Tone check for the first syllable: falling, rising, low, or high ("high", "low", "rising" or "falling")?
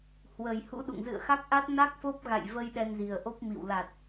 low